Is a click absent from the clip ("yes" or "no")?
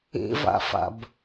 yes